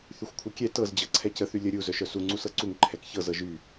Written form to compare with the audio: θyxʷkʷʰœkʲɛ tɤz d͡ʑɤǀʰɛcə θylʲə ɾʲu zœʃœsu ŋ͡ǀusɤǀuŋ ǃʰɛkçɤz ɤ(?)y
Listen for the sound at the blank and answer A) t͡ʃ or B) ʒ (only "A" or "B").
B